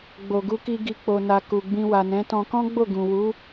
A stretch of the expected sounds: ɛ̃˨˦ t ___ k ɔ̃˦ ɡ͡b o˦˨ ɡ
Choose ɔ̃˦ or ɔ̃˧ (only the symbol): ɔ̃˧